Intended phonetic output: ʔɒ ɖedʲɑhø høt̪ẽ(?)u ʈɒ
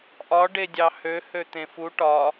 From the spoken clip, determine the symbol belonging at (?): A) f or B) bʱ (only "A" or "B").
A